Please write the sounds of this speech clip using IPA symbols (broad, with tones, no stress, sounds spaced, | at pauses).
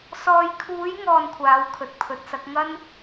s ɔː˨ j kʰ uː˨˧ j ŋ ɔː˧ n kʷʰ aː˨˧ w kʰ ɵ˨˥ t̚ pʰ ɵ˨˥ t̚ s ɐ˨˥ k̚ ŋ ɐ˥ n